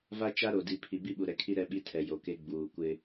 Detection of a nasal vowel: absent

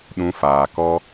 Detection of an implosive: present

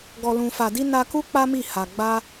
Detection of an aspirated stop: absent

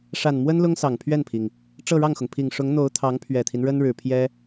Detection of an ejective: absent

